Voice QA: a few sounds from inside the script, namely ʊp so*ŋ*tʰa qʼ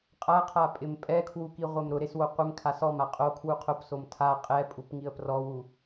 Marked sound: incorrect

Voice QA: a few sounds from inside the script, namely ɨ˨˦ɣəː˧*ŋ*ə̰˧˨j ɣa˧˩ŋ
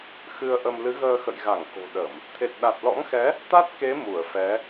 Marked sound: incorrect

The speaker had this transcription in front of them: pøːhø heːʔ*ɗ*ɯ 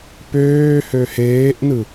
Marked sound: incorrect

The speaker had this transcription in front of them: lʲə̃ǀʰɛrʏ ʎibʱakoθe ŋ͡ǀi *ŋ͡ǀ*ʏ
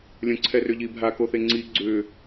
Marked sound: incorrect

